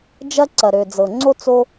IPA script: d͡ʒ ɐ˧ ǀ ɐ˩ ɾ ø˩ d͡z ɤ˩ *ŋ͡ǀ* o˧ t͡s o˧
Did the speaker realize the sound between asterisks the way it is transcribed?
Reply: yes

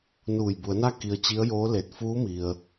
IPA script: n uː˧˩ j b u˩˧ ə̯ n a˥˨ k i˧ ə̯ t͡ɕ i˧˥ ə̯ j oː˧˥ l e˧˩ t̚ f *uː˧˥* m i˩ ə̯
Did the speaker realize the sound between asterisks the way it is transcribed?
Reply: yes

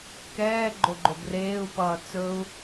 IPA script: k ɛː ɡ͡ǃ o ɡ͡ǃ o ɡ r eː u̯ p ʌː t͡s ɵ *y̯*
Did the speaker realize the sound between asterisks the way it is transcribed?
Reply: no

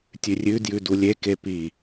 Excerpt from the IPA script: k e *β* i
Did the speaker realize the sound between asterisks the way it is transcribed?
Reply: no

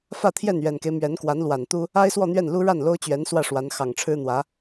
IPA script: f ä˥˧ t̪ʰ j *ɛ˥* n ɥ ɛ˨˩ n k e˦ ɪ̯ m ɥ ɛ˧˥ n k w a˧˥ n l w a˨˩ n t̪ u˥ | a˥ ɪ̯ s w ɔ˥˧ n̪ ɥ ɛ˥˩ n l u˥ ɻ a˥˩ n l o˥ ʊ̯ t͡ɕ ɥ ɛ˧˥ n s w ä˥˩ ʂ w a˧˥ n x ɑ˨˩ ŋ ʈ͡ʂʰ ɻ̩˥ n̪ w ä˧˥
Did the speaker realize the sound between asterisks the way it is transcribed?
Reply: no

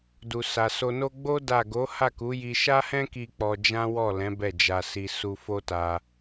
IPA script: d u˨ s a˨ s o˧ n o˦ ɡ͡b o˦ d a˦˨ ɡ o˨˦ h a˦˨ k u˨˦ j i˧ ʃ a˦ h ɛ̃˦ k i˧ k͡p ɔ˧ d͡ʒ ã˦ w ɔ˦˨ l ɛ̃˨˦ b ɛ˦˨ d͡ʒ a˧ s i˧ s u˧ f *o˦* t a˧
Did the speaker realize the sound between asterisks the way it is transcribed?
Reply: yes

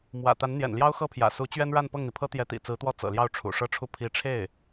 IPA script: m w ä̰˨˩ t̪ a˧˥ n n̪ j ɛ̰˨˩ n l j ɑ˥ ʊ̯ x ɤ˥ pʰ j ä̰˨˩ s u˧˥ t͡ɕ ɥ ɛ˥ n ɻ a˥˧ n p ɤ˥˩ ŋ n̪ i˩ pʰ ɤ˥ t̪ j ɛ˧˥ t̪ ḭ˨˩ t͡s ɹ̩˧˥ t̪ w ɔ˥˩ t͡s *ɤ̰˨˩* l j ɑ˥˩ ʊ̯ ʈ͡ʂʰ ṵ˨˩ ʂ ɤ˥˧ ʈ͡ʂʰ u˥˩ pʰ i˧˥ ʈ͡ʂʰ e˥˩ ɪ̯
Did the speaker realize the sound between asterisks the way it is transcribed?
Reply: yes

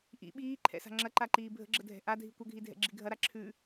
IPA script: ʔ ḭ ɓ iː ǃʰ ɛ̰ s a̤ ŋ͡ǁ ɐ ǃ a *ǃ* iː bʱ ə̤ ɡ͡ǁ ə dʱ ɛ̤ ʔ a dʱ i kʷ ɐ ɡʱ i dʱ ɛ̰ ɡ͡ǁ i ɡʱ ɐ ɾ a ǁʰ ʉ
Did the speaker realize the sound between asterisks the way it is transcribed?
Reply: yes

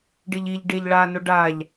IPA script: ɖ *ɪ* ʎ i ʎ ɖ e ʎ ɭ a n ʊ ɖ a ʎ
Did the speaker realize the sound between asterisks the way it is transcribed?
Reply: yes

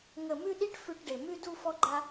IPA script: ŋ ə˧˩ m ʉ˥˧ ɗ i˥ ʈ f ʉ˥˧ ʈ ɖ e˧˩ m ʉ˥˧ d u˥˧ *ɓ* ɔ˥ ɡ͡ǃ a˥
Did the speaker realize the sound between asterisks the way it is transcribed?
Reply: no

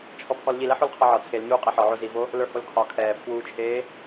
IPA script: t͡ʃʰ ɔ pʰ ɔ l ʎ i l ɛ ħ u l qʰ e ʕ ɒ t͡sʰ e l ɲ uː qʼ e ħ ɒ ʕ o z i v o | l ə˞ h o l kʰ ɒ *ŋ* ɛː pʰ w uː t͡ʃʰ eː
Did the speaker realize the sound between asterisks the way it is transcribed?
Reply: no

